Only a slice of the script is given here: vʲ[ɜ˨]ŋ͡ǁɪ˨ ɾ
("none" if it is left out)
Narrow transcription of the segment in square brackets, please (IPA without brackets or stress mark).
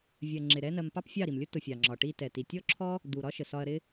ɜ˨